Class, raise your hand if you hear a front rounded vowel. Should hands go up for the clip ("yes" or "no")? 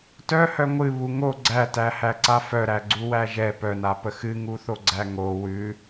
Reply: yes